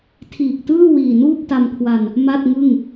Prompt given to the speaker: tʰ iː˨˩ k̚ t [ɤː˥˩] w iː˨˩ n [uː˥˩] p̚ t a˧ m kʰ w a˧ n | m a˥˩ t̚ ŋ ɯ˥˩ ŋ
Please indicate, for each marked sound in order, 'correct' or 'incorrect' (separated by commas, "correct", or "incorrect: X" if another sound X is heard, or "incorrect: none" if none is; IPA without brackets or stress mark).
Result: incorrect: ɯː˥˩, correct